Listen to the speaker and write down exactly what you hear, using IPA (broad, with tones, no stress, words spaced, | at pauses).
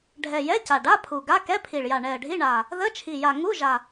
ɖʱɛ˨˩ jɛ˧˥˧ca˨˩ɖa˧˥˧ pʰu˨˩ɡa˧˥˧ kɛ˧˥˧pʰi˨˩ɭja˨˩ ɳɛ˨˩ə̯ɖʱi˧˥˧ɳa˨˩ | ðə˧˥˧t͡ʃʰi˨˩ja˨˩ ŋu˧˥˧ʒa˨˩